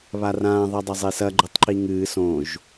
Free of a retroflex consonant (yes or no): yes